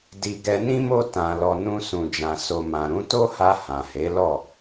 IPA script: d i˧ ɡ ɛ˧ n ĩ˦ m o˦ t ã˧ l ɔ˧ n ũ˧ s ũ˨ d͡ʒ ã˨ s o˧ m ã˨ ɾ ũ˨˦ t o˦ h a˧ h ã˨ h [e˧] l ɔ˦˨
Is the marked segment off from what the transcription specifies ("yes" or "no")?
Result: yes